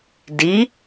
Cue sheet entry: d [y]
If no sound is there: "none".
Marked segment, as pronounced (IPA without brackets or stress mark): i